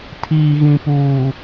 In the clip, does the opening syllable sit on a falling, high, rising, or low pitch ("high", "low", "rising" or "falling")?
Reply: low